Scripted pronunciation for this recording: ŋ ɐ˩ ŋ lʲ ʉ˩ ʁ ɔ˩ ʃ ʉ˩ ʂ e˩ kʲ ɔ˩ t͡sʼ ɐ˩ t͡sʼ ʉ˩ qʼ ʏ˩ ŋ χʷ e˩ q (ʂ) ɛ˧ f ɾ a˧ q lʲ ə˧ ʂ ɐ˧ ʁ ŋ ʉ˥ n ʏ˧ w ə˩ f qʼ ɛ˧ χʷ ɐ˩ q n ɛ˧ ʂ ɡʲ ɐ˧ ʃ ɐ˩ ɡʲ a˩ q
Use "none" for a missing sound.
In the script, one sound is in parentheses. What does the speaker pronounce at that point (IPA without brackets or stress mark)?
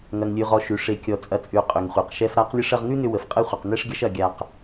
ʃ